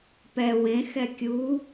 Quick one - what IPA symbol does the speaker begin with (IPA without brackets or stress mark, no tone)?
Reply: p